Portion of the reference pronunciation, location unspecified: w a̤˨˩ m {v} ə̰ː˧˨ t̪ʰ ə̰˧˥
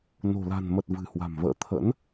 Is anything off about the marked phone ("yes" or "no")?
no